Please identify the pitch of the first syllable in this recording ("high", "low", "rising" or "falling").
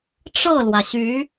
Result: falling